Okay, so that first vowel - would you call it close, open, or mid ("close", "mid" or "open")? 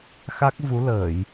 open